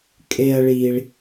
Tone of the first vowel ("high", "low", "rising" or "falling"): high